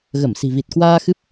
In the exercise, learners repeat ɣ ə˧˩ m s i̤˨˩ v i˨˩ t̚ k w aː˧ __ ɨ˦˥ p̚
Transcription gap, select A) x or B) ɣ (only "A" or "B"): A